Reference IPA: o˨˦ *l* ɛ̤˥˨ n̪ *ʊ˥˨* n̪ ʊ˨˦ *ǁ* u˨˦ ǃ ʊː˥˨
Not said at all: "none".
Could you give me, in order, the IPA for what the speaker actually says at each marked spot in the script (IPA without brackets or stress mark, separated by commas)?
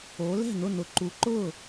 l, ʊ˥˨, ǃ